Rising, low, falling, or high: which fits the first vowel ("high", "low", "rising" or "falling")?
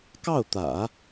falling